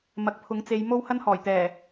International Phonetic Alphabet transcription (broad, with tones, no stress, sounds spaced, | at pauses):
m ɐ˨ k̚ pʰ ʊ˨˥ ŋ t͡s e˨˧ j m o˥ w h ɐ˥ n h ɔː˨˩ j t̪ ɛː˨˩